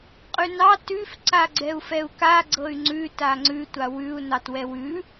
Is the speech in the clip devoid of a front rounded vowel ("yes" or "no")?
no